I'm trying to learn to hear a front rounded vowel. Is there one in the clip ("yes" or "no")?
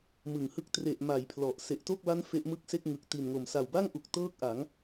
no